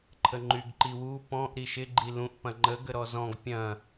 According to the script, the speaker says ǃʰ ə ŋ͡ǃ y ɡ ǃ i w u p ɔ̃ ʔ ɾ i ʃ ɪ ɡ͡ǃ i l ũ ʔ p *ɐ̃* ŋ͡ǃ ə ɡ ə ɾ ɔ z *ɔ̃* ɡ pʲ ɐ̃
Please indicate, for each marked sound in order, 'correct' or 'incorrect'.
correct, correct

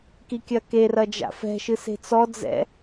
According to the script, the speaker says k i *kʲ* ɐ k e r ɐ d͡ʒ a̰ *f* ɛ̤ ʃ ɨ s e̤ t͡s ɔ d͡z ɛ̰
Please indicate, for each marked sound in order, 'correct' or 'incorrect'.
correct, correct

